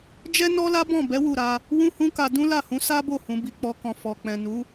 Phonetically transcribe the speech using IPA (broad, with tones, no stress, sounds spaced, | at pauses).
d͡ʒ ɛ˦ n ɔ˦ l a˦ b ɔ̃˦˨ b ɛ˨˦ w u˦˨ ɾ a˧ | w ũ˦ h ũ˦ k a˧ d ũ˦ l a˦˨ h ũ˨˦ s a˦ b o˦˨ h ũ˨˦ b i˧ k͡p ɔ˦ k ɔ̃˧ f ɔ˨ k͡p ɛ̃˨ n u˨˦